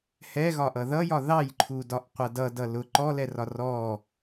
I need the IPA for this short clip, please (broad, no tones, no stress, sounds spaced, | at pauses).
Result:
h ɛ ɣ ɒ ʔ ʌ ð ʌ j ɒ ð ɑ j ǃʰ u d ɒ ʔ qʷ ʌ d ʌ d ʌ l ʊ ǃ ɔ l ɛ r ɒ r ɔ